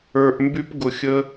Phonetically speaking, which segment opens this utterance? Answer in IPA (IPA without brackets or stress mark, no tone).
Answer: ə˞